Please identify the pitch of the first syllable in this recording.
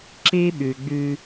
high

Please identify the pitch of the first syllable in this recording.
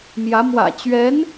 rising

